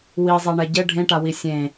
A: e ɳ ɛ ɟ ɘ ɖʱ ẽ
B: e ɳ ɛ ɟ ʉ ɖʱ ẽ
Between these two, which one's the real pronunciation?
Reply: A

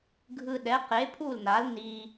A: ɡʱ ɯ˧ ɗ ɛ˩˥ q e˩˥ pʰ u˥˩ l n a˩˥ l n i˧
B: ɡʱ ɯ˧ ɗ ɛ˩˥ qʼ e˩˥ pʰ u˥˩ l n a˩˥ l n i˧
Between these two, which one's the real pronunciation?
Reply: A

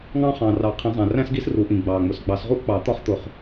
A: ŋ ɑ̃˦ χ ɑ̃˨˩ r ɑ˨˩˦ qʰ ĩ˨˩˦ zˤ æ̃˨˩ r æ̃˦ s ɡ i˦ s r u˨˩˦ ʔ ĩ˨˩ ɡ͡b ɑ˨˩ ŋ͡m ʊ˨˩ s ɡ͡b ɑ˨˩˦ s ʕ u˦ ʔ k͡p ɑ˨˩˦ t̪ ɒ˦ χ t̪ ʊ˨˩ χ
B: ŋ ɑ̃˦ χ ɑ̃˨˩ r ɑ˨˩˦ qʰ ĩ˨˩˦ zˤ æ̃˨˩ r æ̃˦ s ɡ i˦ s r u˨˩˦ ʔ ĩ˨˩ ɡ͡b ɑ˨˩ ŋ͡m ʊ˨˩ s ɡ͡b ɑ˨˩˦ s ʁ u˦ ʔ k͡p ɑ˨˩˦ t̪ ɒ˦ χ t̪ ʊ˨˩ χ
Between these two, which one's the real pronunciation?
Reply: B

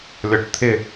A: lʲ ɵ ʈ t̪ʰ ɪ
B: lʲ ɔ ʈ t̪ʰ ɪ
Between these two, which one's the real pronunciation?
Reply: B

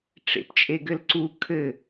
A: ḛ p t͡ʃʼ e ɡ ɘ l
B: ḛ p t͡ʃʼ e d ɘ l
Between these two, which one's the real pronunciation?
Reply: A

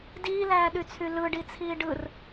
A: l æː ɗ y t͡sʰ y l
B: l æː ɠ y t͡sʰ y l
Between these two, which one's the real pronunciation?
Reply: A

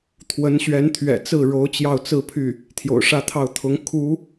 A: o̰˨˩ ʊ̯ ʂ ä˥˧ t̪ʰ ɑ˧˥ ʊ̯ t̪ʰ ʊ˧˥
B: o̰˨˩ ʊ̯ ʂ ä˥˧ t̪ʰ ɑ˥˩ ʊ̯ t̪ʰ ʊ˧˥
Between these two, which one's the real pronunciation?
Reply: B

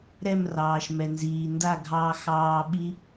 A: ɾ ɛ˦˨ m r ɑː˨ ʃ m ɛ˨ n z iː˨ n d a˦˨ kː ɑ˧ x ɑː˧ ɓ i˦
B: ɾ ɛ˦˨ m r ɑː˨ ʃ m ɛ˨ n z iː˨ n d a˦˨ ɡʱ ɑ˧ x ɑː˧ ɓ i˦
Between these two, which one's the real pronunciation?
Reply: B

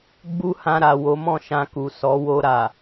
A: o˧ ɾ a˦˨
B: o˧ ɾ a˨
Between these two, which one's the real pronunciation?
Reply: B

